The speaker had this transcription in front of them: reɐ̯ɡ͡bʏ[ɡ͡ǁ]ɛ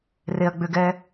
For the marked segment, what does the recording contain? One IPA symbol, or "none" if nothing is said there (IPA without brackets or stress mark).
ɡ